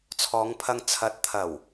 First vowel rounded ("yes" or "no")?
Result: yes